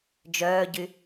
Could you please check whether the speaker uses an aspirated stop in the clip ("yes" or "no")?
no